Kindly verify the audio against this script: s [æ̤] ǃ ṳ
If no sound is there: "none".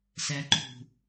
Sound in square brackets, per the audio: æ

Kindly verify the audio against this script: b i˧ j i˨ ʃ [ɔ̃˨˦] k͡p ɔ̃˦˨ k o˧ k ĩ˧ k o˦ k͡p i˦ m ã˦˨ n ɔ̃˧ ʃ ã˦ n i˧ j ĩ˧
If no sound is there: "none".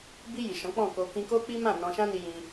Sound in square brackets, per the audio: ɔ̃˨˦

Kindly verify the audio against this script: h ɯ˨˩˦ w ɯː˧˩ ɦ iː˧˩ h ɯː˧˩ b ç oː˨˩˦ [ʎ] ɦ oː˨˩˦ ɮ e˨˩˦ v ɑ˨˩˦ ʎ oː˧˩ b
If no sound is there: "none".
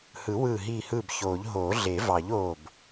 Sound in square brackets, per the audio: ʎ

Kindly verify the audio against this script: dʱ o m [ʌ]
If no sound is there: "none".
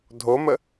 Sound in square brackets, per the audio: ə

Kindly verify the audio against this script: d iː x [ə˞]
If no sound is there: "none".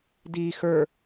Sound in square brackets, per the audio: ə˞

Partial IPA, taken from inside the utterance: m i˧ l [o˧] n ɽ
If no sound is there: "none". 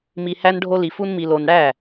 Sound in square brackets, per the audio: o˧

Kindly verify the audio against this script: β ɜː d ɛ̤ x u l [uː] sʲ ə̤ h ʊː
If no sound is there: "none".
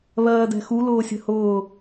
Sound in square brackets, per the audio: ʊː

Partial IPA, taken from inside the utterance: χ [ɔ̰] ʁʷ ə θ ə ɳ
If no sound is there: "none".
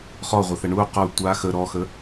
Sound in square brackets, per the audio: ɔ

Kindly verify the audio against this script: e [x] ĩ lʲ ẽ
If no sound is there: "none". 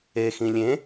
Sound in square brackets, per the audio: x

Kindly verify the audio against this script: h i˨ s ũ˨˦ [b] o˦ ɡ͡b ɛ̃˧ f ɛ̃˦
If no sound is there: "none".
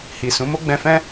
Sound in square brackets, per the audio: m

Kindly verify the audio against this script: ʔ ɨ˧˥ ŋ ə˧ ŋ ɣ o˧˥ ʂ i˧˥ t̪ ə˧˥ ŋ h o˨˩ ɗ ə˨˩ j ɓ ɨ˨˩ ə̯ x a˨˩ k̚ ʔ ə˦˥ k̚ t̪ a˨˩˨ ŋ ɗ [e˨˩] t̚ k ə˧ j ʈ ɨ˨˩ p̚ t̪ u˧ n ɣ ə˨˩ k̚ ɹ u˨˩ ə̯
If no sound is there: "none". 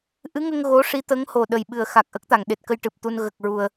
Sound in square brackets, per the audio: e˨˩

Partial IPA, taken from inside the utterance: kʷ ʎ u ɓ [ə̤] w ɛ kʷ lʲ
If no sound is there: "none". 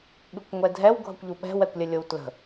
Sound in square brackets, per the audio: ɛ̤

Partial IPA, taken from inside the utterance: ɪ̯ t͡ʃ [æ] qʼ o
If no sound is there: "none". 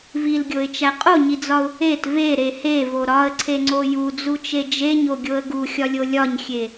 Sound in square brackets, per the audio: æ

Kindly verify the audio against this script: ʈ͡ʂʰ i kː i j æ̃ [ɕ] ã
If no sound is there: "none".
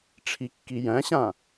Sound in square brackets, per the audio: ɕ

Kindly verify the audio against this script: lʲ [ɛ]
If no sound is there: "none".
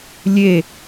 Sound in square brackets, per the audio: e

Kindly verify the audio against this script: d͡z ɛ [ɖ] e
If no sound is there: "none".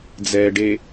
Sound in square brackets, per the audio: ɖ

